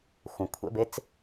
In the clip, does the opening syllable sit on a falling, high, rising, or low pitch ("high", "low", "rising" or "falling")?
low